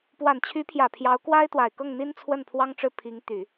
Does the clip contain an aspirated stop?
yes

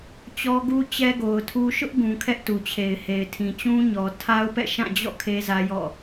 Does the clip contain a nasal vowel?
yes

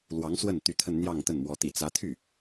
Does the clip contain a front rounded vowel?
yes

